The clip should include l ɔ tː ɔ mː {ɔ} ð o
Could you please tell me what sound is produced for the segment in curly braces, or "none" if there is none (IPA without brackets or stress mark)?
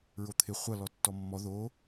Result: ɔ